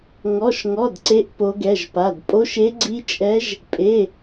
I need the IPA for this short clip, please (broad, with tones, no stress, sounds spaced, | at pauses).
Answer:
ŋ ɔ˧˥˧ ʃ ŋ ɔ˧˥˧ d ǀ e˦˥ ʔ p o˦˥ ɡ ɛ˧˥˧ ʒ p a˧˥˧ d pʼ o˦˥ ʃ e˦˥ ɡ͡ǀ i˦˥ t͡ʃʼ ɛ˦˥ ʒ | pʼ e˧˥˧